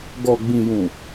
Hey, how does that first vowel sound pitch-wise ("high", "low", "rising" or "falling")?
low